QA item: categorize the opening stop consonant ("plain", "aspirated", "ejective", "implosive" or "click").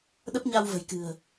implosive